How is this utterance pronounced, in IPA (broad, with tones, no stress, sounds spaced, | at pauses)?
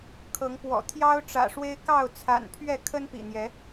kʰ ɤ˨˦ ŋ p w ɔ̰˨˩ t̪ʰ j ɑ˦ ʊ̯ ʈ͡ʂ ä̰˨˩ ʂ w e˦ ɪ̯ k ɑ˥˨ ʊ̯ t͡sʰ a̰˨˩ n pʰ ɥ ɛ˥˨ kʰ ə˦ n p ḭ˨˩ n̪ j ɛ˨˦